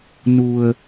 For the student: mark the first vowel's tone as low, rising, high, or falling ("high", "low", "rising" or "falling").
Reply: low